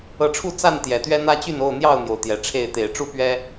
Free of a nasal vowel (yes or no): yes